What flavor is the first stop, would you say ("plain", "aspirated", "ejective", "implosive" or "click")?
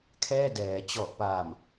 aspirated